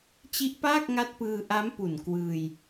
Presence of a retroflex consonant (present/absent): absent